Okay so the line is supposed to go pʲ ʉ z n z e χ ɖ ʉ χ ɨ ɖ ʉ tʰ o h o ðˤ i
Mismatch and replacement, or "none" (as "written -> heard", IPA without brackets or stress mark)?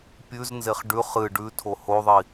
none